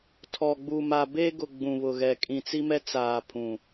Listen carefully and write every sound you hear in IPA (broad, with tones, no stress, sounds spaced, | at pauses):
tʰ ɔ˨ ɡ͡b u˨ m a˨ b e˦ ɡ ʊ˨ ɡ͡b ũ˨ β ʊ˨ ɣ ɛ˨ kʼ ĩ˨ t͡s i˦ m ɛ˦ t͡s aː˨ pʰ ũ˨